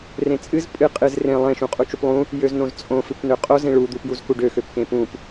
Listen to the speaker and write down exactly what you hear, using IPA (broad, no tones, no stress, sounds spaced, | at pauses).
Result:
r ẽ t͡sʼ ɨ z pʼ ɨ qʼ ɨ z r ẽ lˠ ẽ ʃ ũ qʼ u t͡ʃ u p lˠ ũ | j ø z n õ z t͡sʼ õ f ɨ p n ø qʼ o z ẽ ɭ u d̪ u p j u z k u ɖ ø x ø p k ẽ p ũ p